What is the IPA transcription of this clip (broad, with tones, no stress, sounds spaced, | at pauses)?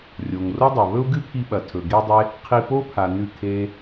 rʲ o˨ ŋ r o˦ dˤ u˨ β ɵ˦ u̯ ɡ ɨ˦ pʰ i˧ ɓ ɐ˨ tʰ ɵ˨ ɡ e˦ dˤ e˦ | qʰ i˧ p o˦ pʰ a˨ n ʉ˦˨ kʰ e˦